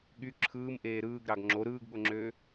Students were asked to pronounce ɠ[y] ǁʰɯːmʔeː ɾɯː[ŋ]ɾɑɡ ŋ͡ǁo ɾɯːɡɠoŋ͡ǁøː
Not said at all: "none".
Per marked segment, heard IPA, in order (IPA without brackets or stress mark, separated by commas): y, ɡ